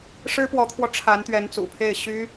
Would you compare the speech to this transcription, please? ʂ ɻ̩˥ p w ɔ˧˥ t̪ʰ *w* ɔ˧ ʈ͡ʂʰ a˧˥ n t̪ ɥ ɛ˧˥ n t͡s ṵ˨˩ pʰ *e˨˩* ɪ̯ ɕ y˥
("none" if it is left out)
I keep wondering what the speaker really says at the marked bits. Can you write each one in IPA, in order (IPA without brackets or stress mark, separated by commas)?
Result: w, e˥˩